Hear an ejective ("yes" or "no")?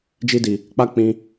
no